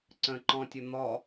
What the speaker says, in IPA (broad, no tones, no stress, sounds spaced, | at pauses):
ǀ ə̃ ǃ ɔ̃ tʲ ə n̪ ɔ